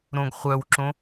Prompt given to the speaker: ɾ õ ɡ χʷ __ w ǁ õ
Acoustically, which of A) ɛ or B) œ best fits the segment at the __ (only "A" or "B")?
B